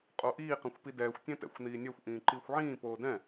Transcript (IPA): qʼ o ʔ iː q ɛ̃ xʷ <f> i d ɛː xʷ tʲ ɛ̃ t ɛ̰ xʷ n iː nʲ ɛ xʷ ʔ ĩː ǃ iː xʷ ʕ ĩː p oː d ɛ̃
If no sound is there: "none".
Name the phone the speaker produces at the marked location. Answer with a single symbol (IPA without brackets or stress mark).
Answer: p